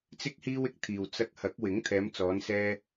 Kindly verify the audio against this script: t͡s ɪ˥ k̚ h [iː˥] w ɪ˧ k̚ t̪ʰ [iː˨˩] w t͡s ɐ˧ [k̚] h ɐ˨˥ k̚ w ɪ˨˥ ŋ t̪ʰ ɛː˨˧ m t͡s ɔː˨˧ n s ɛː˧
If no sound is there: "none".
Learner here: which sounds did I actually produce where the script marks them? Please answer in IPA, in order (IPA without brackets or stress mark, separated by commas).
iː˥, iː˨, k̚